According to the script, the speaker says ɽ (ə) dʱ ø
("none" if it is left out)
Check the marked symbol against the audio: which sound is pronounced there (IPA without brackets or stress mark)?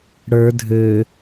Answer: ə˞